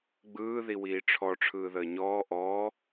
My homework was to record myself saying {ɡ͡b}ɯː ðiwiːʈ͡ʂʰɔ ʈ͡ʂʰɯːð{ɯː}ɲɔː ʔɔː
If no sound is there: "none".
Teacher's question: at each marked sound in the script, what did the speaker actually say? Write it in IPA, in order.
ɡ͡b, əː

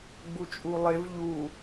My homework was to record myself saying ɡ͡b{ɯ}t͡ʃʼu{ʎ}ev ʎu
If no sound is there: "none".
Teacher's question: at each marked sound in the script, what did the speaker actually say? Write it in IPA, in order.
u, lˠ

